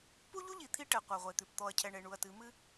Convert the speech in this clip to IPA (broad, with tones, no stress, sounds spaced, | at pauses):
p u˦ ʎ u˦ ʎ i˨ t̪ʰ i˦ ʈ ɛ˨ qʷ a˨ ʁʷ e˨ t̪ ʉ˨ p t̪ ɔ˨ ɐ̯ cʰ ɛ˨ ɳ e˨ ɳ u˨ ɐ̯ t ɨ˨˦ m ɨ˦